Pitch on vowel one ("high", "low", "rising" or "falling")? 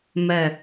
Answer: falling